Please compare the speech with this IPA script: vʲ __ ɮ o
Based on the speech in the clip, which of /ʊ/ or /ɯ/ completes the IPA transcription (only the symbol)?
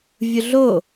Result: ʊ